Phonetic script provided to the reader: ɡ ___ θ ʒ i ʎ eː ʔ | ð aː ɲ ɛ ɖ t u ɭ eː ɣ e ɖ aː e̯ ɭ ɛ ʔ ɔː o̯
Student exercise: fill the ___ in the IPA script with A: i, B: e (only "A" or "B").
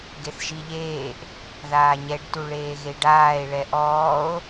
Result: B